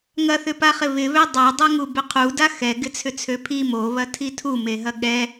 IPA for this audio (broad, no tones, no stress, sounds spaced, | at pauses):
ŋ ɐ θ ʏ p a χ ɪ β ɪ β ø dˤ a dˤ a ŋ u b ʏ qʰ u d a x ɛ ɡ ɪ t͡sʰ ʏ t͡sʰ ø pʰ i m o β ɐ tʰ i tʰ u m e ɦ ɐ ɠ ɛ